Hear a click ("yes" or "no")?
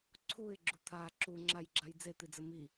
yes